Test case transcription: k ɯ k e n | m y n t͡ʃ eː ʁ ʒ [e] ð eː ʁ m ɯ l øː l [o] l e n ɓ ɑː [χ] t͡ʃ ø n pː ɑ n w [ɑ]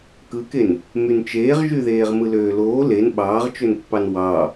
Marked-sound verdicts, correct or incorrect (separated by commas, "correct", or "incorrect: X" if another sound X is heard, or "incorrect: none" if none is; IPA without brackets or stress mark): incorrect: y, incorrect: oː, incorrect: ʁ, correct